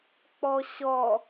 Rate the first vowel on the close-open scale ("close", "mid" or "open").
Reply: mid